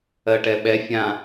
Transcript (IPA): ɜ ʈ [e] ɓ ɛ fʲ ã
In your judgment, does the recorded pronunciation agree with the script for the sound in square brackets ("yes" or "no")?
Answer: no